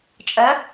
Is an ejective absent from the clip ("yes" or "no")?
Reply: no